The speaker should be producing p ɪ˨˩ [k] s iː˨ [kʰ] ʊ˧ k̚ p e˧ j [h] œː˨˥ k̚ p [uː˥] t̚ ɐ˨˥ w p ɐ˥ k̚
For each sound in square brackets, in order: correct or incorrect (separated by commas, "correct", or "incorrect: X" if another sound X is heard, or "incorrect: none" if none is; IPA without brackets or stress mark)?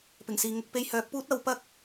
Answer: incorrect: ŋ, incorrect: ŋ, correct, correct